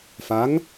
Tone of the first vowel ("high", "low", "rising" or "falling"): rising